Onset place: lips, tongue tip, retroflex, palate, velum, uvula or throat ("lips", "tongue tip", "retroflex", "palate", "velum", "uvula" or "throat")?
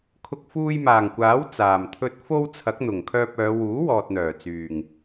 velum